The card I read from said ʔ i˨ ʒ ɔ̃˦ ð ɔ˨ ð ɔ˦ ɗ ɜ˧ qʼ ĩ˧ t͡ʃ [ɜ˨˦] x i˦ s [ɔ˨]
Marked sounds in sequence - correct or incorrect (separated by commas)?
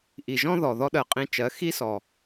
correct, correct